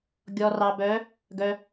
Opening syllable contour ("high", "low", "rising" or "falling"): low